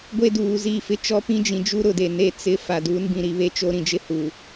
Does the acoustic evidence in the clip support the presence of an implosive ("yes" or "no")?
no